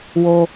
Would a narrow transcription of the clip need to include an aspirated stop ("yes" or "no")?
no